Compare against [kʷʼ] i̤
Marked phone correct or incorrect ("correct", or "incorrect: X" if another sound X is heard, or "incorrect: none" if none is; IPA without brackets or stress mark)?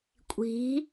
correct